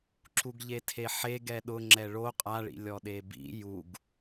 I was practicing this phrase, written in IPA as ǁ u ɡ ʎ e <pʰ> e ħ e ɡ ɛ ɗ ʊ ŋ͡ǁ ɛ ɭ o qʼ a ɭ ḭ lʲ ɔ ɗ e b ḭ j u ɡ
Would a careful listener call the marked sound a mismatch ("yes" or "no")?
yes